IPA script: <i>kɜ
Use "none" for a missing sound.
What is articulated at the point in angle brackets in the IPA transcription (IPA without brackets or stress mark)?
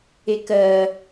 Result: e